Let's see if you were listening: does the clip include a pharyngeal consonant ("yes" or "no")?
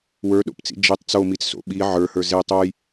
yes